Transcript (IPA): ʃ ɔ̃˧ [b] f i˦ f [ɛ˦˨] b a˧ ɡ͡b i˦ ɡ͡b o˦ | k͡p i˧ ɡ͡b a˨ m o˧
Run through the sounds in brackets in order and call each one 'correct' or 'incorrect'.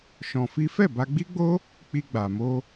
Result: incorrect, correct

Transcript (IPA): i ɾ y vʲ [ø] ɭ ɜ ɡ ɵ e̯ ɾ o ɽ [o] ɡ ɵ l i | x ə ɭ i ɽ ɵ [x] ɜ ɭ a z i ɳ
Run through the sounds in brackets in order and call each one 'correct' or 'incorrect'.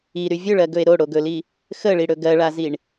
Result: incorrect, correct, incorrect

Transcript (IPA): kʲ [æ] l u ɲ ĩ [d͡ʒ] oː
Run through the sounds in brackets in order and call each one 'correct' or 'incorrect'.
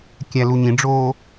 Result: correct, incorrect

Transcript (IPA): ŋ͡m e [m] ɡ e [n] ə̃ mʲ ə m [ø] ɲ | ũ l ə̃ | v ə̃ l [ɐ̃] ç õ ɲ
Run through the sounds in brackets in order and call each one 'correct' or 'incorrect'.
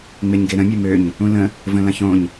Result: incorrect, incorrect, correct, correct

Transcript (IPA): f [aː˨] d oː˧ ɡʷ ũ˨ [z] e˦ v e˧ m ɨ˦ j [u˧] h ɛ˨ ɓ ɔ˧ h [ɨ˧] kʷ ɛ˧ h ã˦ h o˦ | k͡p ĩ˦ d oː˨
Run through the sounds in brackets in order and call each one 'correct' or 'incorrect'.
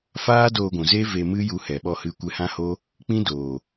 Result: incorrect, correct, correct, correct

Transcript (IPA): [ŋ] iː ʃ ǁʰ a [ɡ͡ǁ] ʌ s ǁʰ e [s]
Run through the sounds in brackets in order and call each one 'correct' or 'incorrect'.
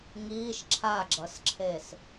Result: correct, correct, correct

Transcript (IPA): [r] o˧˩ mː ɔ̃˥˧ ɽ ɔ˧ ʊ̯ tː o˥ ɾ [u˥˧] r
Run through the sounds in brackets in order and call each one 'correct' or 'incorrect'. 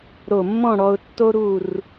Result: incorrect, correct

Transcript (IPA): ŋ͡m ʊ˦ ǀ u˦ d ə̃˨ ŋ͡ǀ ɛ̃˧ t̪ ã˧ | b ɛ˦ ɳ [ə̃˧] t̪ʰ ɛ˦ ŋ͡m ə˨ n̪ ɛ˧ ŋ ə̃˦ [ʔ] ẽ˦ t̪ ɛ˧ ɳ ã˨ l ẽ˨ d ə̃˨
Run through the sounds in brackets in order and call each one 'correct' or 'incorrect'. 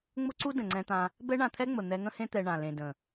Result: incorrect, incorrect

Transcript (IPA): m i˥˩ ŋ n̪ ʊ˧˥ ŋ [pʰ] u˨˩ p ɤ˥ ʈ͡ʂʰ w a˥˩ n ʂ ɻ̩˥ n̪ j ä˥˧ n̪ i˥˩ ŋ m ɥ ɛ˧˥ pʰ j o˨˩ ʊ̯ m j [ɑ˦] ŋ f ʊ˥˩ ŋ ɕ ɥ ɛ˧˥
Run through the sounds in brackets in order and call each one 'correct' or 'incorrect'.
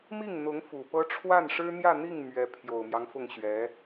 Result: incorrect, correct

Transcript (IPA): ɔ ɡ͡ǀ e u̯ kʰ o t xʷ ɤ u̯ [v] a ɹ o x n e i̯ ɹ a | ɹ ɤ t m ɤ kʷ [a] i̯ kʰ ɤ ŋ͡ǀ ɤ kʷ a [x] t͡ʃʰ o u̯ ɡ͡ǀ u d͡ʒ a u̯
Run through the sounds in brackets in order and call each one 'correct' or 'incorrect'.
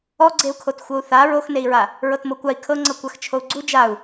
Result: incorrect, correct, correct

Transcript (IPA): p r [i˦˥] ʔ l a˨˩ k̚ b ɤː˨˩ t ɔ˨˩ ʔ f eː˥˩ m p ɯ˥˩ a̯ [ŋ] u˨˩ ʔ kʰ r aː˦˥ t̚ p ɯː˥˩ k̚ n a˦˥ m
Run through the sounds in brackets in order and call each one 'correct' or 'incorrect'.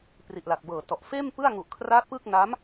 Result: incorrect, correct

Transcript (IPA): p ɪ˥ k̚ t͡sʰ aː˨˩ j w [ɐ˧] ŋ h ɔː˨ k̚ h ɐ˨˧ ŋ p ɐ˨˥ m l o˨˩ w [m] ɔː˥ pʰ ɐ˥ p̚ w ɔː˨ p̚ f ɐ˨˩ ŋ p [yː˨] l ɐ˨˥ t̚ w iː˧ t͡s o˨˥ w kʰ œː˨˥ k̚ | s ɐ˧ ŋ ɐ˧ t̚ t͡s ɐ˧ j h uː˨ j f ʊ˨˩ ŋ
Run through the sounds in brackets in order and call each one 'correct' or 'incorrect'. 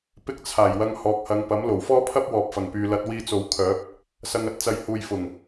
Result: correct, incorrect, correct

